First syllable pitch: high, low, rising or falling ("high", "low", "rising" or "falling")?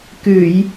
low